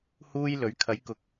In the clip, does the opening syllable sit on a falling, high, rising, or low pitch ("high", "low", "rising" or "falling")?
high